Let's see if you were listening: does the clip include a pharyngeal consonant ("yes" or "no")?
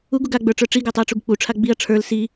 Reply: no